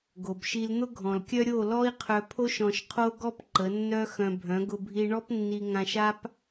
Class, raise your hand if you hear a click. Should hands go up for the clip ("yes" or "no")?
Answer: yes